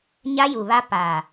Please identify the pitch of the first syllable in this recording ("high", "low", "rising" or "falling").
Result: high